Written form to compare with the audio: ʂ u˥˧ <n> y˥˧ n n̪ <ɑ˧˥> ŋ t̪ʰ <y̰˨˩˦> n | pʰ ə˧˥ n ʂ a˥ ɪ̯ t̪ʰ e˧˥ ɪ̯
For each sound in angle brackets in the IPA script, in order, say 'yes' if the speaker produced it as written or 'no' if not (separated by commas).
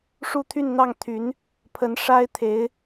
no, no, no